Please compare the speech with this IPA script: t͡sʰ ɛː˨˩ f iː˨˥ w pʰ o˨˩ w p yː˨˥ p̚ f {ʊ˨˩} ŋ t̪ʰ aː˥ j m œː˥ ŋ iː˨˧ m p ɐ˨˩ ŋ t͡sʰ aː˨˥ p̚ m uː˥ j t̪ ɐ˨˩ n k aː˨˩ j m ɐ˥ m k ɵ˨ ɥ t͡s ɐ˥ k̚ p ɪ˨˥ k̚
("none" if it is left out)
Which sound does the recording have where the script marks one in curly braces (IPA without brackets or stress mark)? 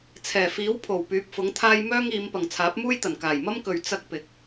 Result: ʊ˨˥